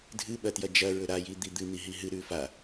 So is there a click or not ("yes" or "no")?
no